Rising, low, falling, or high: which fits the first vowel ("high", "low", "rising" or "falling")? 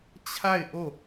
falling